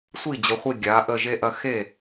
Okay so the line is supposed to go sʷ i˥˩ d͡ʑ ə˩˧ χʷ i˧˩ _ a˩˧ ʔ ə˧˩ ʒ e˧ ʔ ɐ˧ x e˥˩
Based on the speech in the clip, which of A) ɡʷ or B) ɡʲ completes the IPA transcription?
B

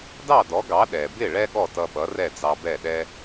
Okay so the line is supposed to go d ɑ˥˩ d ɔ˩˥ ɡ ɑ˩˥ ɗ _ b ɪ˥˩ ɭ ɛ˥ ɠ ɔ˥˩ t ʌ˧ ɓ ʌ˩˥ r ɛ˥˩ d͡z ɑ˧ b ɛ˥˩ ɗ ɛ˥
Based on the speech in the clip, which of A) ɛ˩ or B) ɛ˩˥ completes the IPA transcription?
A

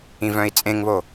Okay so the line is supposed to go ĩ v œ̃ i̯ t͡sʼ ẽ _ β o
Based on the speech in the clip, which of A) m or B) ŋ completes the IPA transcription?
B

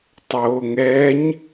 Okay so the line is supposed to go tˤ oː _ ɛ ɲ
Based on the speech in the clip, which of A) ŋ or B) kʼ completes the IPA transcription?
A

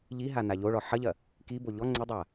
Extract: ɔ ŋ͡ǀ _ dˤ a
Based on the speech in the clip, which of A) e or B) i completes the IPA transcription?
A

